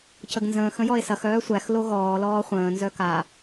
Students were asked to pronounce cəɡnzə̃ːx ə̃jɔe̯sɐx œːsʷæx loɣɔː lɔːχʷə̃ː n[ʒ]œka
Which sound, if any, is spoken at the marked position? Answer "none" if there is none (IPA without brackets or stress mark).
z